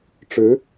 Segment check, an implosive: absent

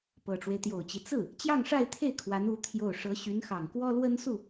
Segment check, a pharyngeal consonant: absent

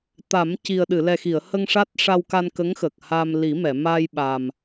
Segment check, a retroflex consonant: present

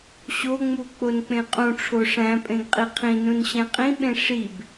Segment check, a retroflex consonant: present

